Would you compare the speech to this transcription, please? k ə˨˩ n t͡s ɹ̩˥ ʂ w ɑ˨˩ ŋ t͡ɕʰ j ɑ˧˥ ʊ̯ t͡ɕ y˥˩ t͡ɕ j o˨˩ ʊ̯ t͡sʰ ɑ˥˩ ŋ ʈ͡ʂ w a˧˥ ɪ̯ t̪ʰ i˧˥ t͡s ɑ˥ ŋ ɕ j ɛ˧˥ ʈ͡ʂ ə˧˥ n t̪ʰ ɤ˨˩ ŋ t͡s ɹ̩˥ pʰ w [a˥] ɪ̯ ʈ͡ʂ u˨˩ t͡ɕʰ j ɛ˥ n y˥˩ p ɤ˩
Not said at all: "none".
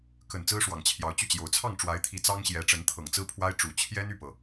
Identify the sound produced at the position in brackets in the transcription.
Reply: a˥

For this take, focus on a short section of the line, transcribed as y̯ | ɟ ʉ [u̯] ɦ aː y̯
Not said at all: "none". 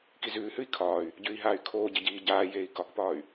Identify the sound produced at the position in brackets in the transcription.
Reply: i̯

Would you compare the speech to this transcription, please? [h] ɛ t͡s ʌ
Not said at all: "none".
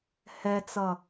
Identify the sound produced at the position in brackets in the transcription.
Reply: h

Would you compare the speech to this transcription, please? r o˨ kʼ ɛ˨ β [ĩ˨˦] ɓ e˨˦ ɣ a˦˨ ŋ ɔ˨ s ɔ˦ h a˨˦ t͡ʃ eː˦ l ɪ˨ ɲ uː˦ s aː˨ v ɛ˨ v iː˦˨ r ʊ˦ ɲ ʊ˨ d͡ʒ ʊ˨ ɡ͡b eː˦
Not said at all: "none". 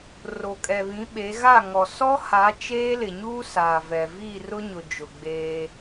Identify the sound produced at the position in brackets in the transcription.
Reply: ĩ˨˦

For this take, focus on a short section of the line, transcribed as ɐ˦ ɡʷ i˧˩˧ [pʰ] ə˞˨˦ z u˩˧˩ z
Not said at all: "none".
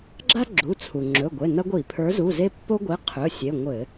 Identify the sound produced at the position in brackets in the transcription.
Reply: pʰ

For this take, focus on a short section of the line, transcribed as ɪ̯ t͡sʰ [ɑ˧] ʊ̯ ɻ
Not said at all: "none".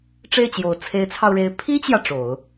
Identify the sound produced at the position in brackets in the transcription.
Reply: ɑ˧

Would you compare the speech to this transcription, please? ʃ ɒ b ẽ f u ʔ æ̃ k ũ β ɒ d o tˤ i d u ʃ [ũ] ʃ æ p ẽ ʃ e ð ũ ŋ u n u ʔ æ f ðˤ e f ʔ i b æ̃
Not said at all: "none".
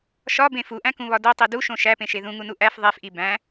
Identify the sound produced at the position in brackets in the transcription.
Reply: õ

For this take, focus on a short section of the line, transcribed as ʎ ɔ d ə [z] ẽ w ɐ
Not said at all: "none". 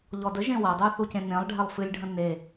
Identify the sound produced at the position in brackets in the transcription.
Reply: ʒ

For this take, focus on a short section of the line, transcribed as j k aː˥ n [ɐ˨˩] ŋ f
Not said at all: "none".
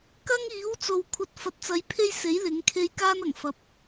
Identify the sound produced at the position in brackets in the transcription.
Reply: ɐ˨˩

